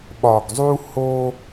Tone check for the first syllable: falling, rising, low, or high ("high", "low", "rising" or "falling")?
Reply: low